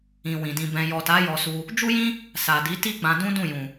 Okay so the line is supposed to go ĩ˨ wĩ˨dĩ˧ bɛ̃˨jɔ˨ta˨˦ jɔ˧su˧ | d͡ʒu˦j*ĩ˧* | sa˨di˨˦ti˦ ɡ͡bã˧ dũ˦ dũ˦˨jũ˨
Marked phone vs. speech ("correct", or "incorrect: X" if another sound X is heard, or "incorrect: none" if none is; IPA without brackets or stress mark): incorrect: ĩ˦